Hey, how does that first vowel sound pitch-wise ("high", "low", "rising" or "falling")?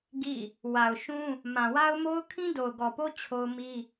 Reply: falling